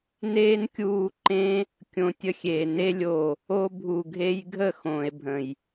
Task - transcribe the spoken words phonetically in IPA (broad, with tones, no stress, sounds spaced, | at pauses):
n eː˦ n kʲ uː˧ ǃ ẽ˦ | kʲ õ˧ tʲ ə˧ xʲ eː˨ n e˧ lʲ o˨ | o˧ bʱ u˨ ɡʱ e˧ j ɡʱ ə˦˨ x õː˨ e̯ bʱ ə̃˨ j